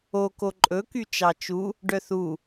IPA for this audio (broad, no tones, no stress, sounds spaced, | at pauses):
o k o ǃʼ ɵ k y t͡ʃ ɑ t͡ʃ u | ɖ œ θ u